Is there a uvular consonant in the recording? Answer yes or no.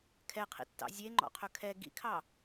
yes